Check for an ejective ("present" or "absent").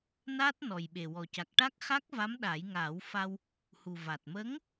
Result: absent